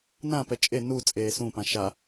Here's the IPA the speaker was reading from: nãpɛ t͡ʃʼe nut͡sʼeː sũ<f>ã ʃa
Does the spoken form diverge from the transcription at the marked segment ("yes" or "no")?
yes